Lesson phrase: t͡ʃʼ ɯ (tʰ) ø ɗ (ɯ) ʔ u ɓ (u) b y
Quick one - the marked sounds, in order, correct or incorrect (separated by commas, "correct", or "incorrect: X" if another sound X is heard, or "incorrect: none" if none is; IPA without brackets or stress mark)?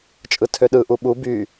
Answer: correct, correct, correct